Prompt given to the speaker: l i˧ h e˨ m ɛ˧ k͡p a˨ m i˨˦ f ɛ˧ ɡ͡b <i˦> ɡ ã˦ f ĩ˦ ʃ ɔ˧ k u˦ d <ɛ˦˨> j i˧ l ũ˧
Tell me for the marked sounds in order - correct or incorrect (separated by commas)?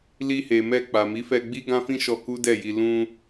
correct, correct